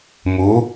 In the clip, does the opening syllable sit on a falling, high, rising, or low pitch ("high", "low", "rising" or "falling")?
rising